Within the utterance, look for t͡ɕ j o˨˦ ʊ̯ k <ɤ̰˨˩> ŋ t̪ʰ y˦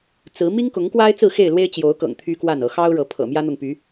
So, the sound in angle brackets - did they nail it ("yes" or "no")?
yes